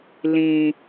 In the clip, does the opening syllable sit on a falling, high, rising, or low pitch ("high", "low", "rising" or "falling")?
low